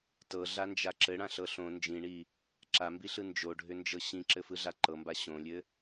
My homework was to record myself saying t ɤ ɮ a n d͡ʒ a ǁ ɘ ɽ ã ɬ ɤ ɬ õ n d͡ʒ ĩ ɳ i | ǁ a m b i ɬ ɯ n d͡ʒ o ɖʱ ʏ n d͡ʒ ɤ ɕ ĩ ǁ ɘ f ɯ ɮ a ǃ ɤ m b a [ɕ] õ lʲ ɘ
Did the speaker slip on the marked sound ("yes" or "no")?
no